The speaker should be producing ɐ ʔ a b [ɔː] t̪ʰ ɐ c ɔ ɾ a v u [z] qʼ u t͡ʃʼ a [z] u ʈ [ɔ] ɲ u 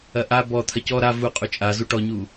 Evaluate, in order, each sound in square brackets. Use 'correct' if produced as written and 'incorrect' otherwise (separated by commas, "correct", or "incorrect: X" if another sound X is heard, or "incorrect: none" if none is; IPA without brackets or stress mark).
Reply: incorrect: ɔ, incorrect: none, correct, correct